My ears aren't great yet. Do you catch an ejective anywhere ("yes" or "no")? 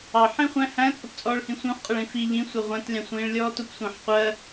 yes